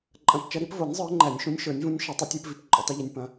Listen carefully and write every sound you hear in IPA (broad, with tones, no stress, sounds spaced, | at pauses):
ǃʼ ɐ̃˨˩˦ p t͡ʃ ɐ˨˦ ɾ i˨˦ p v o˨˩˦ nʲ zˤ ə˞˨˦ ŋ͡ǃ æ˨˩˦ nʲ ʃ ũ˨˦ nʲ ʃ ə˞˨˩˦ nʲ v ũ˨˦ nʲ ʃ ɐ˨˩˦ tˤ ʏ˨˩˦ tʲ ə˞˨˦ p v i˨˦ p ǃʼ ʏ˨˩˦ tˤ u˨˦ ʎ ɐ˨˦ nʲ p ɐ̃˨˦